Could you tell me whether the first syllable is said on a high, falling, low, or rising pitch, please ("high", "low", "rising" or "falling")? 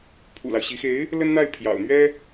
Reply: low